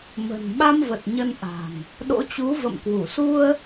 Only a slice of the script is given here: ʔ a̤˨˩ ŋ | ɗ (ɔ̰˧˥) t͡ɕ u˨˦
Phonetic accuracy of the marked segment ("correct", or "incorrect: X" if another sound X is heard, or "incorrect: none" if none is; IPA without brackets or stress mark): incorrect: o̰˧˥